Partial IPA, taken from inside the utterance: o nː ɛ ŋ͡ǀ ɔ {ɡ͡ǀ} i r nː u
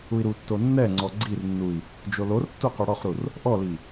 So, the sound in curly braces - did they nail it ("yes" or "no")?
yes